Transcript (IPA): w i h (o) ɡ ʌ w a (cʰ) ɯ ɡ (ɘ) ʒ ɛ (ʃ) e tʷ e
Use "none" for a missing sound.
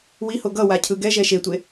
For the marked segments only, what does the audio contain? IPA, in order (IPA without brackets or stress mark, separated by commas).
o, cʰ, ɛ, ʃ